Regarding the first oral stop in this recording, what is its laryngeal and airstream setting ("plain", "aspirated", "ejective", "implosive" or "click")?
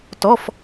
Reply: plain